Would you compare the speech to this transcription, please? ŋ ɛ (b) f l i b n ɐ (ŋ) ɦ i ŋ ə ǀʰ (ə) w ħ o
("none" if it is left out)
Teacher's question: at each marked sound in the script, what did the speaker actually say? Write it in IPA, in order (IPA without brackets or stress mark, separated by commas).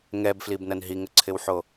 b, n, ɪ